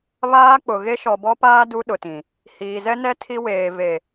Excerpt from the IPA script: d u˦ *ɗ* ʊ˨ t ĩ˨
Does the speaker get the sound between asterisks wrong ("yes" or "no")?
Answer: no